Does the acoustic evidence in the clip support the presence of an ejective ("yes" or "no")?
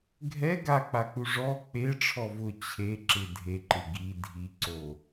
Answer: no